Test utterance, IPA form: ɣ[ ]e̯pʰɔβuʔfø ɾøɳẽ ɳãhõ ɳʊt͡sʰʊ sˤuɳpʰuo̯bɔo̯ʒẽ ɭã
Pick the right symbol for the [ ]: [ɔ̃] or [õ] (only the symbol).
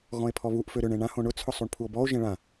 ɔ̃